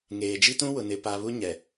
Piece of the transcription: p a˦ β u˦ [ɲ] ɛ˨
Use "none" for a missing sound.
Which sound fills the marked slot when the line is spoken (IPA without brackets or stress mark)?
ɲ